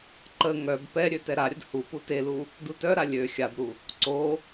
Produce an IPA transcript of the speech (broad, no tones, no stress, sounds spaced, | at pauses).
ǃ ə ŋ œ b p ɛ ɾʲ ø t ɛ ɾ a ɾʲ ə d h u p u t e l u | d u t œ ɾ a lʲ ø xʲ a b ɾ u | ǀ o